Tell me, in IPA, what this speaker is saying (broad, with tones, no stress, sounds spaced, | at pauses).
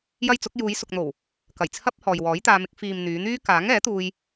j ɐ˥ j t͡s ʊ˨˥ k̚ j uː˨˧ j s ʊ˨ k̚ n̪ o˨˩ w | k ɐ˨˩ j t͡sʰ ɐ˥ p̚ h ɔː˨ j w ɔː˨˥ j t̪ aː˧ m ɪ˨˥ k̚ f iː˨ m n̪ yː˨˧ n̪ yː˥ k aː˨˥ ŋ ɛː˨˥ t̪ uː˧ j